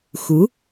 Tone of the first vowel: rising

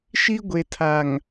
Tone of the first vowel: high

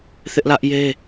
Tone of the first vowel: high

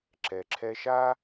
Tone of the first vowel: low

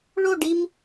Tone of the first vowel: falling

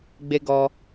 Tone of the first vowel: high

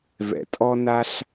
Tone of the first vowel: low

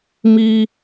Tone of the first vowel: high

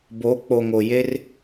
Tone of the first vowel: rising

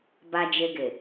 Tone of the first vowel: low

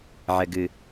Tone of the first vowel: low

